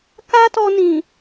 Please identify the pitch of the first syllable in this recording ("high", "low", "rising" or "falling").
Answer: high